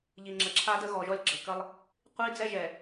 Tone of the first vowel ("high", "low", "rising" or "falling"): low